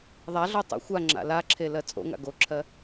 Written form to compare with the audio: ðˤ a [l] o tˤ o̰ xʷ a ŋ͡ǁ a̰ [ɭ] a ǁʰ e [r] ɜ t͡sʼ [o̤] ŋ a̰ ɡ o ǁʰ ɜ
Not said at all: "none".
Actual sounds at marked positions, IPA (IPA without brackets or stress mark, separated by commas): ɮ, l, l, o̰